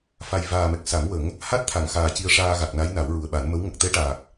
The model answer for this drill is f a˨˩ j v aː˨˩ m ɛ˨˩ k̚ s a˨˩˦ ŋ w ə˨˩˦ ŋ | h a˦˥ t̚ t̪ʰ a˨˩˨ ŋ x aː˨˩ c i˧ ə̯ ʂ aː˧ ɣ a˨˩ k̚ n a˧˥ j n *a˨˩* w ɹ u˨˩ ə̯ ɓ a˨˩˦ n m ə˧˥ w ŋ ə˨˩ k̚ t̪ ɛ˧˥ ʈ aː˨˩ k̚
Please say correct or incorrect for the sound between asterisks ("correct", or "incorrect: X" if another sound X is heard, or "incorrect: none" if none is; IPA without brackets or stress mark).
incorrect: a˨˩˦